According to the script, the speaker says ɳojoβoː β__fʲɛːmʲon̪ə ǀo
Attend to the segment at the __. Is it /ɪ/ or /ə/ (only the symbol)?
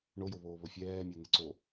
ə